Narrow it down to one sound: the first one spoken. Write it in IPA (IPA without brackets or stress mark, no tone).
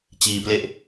t͡ɕ